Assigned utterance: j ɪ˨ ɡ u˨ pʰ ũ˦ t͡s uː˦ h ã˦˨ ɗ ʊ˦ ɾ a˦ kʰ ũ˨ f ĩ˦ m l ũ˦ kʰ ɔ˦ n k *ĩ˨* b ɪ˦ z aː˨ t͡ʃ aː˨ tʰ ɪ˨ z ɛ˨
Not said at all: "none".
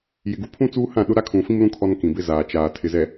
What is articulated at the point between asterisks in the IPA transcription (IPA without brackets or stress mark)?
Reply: ĩ˨